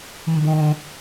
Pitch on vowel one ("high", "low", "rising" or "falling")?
low